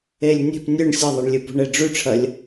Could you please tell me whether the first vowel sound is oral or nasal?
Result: oral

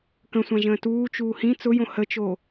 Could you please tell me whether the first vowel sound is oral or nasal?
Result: nasal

